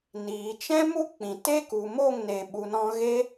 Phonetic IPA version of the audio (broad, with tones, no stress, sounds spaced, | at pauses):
n iː˨ t͡ʃ ɛ̃˦ m u˦ k͡p ĩ˨ t e˦ k u˨ m o˦˨ ŋ n e˨ ɓ u˨ n ɔ̃˧ ɣ e˦